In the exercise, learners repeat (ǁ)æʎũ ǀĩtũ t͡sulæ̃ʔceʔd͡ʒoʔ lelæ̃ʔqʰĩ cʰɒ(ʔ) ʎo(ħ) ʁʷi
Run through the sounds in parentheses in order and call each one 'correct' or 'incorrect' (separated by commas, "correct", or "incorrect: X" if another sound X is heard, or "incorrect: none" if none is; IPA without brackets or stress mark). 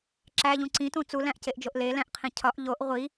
correct, correct, incorrect: ʔ